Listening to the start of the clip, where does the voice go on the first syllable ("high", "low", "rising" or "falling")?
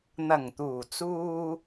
low